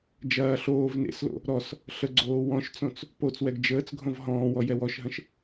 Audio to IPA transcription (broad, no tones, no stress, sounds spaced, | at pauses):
d͡ʒ ɐː ɬ oː v n ḛ s l o̰ | ɾ ɔ s | ɬ ə ɡ͡ǀ oː w ɔ̃ ʃ t͡s õ t͡s | p o t͡s w ɛ ɡ d͡ʒ əː t͡s ɡʱ õ v ɦ ɔ̃ː w ɔ j ɛ w ɔ ʃ ɦ ə̃ ʃ